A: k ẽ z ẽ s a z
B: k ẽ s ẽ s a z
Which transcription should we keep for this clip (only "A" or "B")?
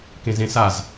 A